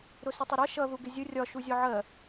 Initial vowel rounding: rounded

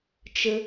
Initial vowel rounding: unrounded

